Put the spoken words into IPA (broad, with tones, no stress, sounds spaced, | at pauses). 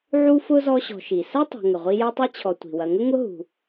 ʕ u˥ f ʊ˥ z ɔ˦ ɕ ɔ̤˨ ʃ i˩ s ɐ˥ tˤ ɛ̤˨ ŋ ə˩ ʁʷ i˦ j ɛ˥ tˤ i˥ t͡ɕʰ ɔ˨ tʷ i̤˩ w ɐ˨ ŋ ə˥ ŋ ʊ˦ ɦ ṳ˩